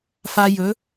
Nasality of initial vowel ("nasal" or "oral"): oral